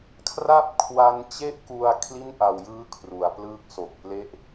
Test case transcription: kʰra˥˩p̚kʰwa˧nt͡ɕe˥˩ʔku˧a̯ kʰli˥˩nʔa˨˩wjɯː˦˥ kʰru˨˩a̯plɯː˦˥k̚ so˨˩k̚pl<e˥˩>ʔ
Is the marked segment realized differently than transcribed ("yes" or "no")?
no